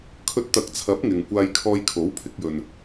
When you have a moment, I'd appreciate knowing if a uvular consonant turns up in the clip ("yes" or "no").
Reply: no